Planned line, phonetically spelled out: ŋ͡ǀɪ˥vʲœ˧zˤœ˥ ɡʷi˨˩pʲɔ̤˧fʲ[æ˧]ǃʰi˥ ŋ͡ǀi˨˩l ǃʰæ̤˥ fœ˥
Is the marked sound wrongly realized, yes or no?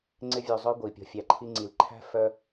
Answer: no